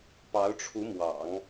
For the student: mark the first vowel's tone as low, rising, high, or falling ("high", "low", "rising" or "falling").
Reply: rising